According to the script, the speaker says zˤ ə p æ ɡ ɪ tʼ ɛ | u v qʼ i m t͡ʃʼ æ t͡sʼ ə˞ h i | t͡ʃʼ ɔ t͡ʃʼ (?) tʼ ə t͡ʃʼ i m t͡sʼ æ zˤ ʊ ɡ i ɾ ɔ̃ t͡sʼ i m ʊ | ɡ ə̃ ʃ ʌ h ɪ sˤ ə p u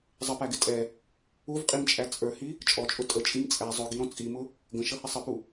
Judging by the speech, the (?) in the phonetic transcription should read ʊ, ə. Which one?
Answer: ʊ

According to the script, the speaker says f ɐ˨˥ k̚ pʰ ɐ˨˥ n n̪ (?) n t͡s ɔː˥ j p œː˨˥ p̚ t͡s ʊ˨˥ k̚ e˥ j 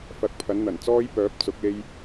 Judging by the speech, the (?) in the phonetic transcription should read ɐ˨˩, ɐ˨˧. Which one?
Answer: ɐ˨˩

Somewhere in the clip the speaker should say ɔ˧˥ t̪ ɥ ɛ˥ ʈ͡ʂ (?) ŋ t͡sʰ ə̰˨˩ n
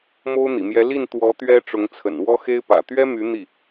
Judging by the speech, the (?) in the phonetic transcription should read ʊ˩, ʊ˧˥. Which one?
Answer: ʊ˧˥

